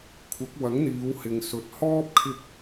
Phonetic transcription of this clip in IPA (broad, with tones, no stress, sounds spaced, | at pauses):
kʷʰ ɐ˨˥ k̚ w ɐ˨˥ ŋ n̪ iː˨˧ w h ɪ˨ ŋ s ɵ˨ t̚ h ɔː˥ p̚ kʰ ɪ˧ k̚